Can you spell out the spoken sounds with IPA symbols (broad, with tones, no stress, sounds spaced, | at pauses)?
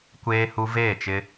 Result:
kʷ eː˦ h u˦ v eː˦˨ t͡ʃ ɪ˦